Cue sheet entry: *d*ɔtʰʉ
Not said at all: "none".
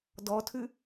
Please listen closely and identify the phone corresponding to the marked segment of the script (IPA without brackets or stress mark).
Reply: d